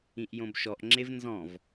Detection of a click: present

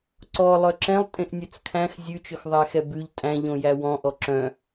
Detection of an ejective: present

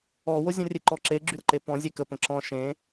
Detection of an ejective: absent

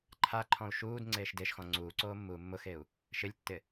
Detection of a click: present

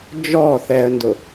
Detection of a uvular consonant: absent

